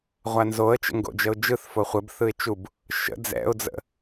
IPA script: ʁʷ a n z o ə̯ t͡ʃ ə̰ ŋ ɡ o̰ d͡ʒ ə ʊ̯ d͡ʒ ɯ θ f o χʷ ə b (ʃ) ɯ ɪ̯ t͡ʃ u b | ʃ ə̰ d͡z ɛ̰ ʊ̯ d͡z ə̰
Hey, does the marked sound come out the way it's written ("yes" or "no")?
no